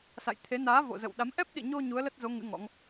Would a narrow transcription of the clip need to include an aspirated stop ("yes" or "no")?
yes